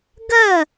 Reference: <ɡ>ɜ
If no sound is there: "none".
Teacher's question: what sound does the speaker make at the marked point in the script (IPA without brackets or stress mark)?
ɡ